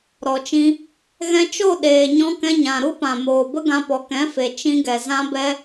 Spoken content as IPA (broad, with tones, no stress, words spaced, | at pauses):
ɾɔ˨t͡ʃĩ˧ | ɣɛ̃˧t͡ʃo˦˨ ɗeː˨ɲɔ̃˧kɛ̃˧ɲã˨ ɾu˦pã˨moː˨bə˦ ɡã˧pɔ˨kɛ̃˨˦fe˨ t͡ʃĩ˧ɡɛ˨ zã˦bɛ˦